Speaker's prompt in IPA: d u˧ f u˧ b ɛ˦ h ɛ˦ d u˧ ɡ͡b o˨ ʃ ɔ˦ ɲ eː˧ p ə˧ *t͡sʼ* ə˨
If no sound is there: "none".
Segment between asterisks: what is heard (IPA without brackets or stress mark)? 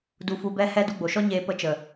t͡ʃ